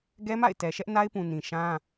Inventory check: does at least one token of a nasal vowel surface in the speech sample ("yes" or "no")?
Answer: yes